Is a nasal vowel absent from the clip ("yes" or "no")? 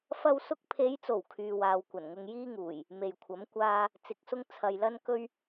yes